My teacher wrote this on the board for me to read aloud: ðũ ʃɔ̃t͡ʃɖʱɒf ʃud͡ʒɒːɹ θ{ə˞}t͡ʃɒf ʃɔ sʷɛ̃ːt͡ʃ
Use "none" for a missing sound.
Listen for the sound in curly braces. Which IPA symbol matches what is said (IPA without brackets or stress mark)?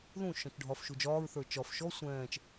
ə˞